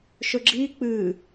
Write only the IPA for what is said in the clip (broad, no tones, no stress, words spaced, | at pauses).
ʃɵɡ͡ǁiː k͡pɨː